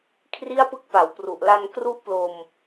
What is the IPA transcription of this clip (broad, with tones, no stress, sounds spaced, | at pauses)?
kʰ r i˥˩ a̯ p ɯ˦˥ k̚ p a˩˦ w p r u˨˩ ʔ l a˧ n k r u˥˩ ʔ p l o˧ m